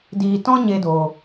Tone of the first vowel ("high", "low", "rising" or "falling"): low